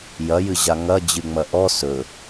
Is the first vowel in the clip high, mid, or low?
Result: low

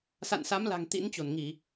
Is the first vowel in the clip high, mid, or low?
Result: low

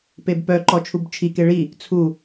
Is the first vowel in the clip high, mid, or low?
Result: mid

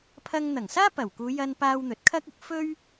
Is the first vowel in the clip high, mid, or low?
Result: low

